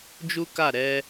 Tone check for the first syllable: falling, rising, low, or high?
high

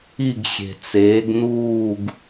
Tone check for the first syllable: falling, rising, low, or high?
falling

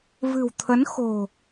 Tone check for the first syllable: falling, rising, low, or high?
low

